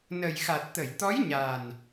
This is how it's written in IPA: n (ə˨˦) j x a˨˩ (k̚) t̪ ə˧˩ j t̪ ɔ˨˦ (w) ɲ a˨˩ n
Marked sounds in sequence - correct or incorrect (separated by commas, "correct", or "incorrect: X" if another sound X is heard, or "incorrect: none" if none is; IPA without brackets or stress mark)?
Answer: incorrect: ə˨˩, incorrect: t̚, incorrect: j